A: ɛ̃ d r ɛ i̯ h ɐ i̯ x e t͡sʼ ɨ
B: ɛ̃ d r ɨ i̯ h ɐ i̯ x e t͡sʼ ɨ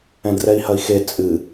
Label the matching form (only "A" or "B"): A